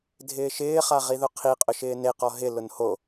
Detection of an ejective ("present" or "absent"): present